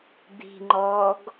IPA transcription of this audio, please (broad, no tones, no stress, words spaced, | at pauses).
d̪i̤ŋ͡ǃɔːɡ